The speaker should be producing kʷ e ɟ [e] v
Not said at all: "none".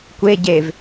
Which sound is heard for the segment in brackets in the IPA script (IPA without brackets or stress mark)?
e